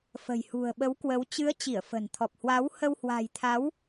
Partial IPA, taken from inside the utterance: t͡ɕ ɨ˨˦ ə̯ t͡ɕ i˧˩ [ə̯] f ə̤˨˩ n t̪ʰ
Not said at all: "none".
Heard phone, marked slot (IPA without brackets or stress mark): ə̯